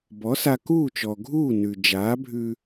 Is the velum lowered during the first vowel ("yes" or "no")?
no